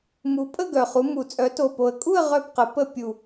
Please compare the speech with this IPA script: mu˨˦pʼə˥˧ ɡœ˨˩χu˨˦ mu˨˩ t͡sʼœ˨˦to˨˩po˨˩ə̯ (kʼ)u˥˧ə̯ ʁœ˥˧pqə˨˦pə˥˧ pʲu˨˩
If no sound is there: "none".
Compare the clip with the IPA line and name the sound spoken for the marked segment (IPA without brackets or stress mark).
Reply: kʼ